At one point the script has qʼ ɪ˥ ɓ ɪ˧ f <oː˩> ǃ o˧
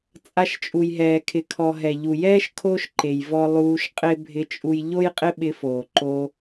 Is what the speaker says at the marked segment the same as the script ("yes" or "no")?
yes